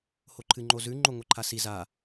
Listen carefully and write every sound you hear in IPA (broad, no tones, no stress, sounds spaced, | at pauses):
h o ǃʰ ɨ ŋ͡ǃ o z ʉ ŋ͡ǃ o ŋʷ ɨ ǃʰ a s i z a